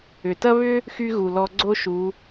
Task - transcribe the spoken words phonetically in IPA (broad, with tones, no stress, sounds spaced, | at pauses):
ʏ˩ t ɐ˥ β ʏ˥ | x y˥ ɣ u˩ l ɔ˧ ɡ͡ǀ o˥ ʃ u˩˧